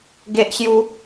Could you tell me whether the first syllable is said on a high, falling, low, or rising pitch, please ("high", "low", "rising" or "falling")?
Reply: high